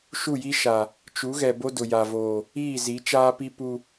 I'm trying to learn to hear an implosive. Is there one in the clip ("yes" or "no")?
no